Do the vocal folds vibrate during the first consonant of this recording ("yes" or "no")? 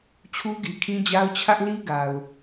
no